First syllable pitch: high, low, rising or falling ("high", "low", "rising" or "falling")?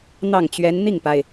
falling